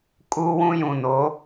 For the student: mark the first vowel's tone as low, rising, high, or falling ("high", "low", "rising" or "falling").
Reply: high